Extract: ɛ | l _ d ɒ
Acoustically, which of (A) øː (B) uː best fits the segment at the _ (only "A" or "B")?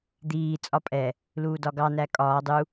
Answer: B